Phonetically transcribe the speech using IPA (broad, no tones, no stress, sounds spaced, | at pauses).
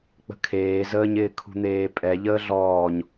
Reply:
k͡p ə̤ kʰ eː z əː ɲ ɪː kʰ ṳ n̪ eː pʼ ɛ ʎ əː ɮ ɔː ɲ